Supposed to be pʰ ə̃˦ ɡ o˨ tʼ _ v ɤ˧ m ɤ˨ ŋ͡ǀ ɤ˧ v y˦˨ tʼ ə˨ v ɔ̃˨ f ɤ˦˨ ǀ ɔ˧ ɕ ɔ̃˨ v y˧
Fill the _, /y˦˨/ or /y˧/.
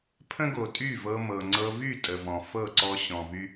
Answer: y˦˨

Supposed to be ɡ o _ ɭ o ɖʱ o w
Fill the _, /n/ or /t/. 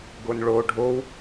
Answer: n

